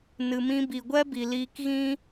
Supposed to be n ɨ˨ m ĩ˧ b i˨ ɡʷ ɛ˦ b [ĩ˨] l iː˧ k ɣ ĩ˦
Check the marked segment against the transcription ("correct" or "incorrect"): incorrect